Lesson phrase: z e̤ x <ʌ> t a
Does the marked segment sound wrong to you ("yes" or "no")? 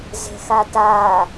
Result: yes